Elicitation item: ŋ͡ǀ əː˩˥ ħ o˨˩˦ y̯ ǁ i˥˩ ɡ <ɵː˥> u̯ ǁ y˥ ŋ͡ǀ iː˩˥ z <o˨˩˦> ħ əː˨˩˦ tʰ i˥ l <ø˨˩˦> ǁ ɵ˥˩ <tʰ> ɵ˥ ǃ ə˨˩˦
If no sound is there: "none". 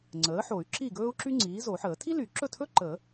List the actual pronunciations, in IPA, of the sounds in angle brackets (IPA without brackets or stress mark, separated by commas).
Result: ɵː˥, o˨˩˦, y˨˩˦, tʰ